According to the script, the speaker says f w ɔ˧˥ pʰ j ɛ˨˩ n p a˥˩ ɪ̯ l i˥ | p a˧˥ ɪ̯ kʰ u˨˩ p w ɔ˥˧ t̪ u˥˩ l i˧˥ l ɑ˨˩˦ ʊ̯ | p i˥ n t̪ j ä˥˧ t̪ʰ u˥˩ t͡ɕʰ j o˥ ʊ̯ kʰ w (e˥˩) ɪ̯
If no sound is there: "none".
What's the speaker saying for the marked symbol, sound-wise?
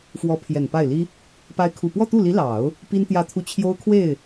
e˥˩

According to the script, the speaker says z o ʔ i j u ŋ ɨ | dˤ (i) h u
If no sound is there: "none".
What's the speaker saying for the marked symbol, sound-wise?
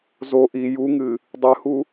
ɨ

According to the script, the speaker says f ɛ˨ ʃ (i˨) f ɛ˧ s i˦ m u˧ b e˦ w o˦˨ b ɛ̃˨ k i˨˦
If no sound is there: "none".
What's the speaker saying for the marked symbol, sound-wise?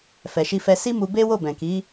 i˧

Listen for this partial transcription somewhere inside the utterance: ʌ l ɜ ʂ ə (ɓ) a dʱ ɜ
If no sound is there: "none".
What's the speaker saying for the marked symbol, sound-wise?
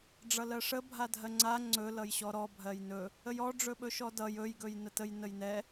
bʱ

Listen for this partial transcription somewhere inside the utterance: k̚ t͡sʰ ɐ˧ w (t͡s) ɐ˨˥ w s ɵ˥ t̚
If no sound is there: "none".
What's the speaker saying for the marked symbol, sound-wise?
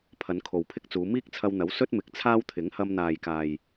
n̪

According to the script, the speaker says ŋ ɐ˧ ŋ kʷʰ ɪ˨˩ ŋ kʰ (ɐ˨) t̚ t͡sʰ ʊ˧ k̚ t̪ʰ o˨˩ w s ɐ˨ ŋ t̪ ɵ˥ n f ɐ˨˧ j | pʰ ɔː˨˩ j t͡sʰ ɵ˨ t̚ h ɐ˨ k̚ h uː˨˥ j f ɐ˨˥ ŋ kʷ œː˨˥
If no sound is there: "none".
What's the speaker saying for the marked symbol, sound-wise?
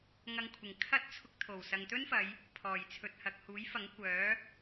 ɐ˥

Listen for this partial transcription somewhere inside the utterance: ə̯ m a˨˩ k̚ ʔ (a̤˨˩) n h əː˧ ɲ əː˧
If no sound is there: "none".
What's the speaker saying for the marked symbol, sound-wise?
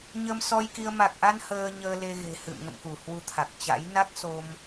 a˧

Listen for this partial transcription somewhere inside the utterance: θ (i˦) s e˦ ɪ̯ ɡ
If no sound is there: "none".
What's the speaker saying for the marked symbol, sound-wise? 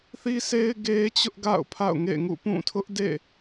i˦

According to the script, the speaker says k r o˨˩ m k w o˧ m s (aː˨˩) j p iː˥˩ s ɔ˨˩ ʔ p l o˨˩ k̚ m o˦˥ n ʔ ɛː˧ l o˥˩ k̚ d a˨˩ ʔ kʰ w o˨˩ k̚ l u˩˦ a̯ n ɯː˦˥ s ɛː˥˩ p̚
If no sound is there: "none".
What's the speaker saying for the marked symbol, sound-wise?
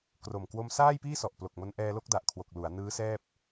aː˥˩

